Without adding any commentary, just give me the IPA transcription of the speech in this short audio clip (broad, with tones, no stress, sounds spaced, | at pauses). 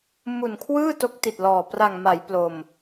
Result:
m u˨˩ n kʰ w ɯː˥˩ t o˦˥ k̚ t i˨˩ t̚ l ɔː˨˩ p r a˨˩ ŋ m a˩˦ j p l o˧ m